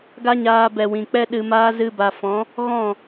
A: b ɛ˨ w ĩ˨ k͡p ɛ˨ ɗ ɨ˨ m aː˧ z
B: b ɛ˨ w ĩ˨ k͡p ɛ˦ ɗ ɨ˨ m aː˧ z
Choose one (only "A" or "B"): B